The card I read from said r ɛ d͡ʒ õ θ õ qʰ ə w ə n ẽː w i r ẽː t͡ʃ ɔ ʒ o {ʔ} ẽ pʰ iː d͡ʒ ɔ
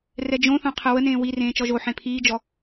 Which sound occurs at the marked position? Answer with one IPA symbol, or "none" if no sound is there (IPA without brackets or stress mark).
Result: ħ